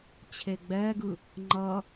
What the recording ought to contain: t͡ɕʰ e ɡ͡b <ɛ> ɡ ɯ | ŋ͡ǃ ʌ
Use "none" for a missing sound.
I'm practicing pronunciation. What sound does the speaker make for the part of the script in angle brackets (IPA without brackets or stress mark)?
ɛ